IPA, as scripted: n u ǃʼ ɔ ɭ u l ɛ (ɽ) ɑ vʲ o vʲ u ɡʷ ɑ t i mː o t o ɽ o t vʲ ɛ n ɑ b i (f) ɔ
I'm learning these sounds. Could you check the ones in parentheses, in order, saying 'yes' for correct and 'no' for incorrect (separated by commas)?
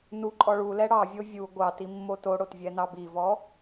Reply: yes, no